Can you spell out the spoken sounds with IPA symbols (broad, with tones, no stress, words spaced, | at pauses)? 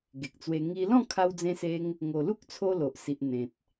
ɡe˨k̚t͡swe˧ ŋi˧ lɔ̃˥˧kʰa˧w d͡zẽ˧se˧ŋ | ŋo˨˩lu˦k̚t͡sʰo˧ lo˨ʔ si˨ʔ n̪ẽ˨t̚